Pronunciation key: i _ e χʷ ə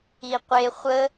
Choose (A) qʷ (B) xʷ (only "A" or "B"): A